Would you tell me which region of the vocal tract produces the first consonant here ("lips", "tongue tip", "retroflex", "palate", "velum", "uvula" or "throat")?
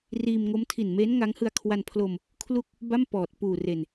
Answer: tongue tip